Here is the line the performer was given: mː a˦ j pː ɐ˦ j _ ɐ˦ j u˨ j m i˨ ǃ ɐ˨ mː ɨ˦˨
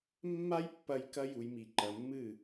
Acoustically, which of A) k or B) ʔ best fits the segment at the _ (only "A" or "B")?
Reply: A